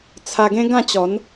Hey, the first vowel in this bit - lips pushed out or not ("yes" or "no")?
no